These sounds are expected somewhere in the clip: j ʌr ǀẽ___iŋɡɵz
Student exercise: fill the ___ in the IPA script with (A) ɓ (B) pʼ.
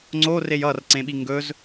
A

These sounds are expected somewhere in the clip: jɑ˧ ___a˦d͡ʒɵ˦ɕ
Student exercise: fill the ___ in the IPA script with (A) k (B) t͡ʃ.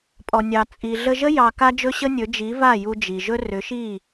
A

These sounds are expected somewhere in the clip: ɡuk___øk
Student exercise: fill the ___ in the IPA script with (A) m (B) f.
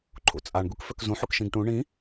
B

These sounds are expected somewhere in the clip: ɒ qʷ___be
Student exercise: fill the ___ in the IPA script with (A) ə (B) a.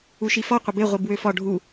A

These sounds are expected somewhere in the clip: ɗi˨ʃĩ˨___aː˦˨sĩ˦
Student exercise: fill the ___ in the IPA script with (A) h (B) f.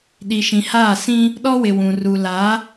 A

